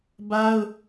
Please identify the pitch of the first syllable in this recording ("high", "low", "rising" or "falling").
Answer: high